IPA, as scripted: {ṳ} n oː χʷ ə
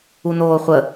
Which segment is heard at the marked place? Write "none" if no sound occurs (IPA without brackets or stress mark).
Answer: u